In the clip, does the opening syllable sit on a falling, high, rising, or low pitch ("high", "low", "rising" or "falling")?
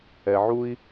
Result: low